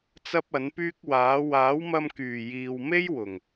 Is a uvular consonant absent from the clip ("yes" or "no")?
yes